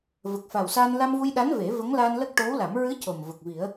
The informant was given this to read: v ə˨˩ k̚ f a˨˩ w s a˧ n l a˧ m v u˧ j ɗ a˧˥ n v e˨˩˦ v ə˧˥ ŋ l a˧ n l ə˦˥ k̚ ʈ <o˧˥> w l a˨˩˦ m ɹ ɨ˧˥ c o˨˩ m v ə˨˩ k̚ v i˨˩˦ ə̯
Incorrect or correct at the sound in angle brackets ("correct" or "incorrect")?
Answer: correct